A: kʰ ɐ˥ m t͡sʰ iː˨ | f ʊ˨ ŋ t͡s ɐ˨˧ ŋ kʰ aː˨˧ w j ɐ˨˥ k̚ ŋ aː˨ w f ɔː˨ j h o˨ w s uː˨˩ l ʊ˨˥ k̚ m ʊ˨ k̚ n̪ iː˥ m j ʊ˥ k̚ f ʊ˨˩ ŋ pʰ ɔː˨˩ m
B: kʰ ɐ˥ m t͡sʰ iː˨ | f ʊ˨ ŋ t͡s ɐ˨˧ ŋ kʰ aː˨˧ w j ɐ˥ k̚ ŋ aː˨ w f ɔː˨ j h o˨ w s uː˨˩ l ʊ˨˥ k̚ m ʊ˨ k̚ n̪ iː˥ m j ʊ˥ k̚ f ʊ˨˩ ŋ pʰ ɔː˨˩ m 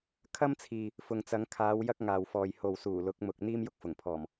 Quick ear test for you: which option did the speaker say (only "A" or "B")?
B